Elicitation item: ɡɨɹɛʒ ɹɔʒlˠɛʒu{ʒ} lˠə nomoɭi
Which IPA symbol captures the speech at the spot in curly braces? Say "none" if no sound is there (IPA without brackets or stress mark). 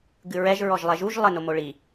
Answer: ʒ